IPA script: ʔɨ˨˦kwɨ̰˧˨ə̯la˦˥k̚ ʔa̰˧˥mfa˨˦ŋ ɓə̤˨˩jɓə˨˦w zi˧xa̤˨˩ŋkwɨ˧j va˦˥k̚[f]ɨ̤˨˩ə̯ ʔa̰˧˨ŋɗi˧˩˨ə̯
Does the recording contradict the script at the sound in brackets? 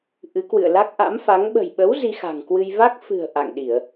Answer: no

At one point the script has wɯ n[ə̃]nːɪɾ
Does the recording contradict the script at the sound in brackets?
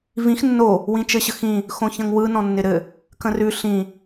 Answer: yes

